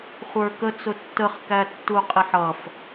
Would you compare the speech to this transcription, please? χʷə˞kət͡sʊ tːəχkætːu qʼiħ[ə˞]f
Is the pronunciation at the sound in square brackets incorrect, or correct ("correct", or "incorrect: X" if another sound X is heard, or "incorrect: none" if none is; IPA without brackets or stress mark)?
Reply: incorrect: ʌ